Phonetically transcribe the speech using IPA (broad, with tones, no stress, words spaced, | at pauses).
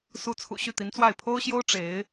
su˧˥t͡sʰṵ˨˩ ɕy˥˩t̪i˧˥nt͡swa˥˩ɪ̯ pʰo˥ʊ̯ɕjo˥ʊ̯ ʈ͡ʂe˧˥ɪ̯